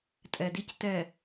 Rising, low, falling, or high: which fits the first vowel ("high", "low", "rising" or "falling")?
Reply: low